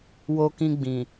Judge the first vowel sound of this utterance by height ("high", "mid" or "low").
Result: mid